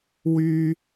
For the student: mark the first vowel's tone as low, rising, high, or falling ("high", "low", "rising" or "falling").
high